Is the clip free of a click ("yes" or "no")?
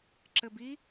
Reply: no